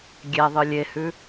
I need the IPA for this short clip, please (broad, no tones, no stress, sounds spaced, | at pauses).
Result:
ɡʲ ɛ ðˤ ɯ lʲ e h ʉ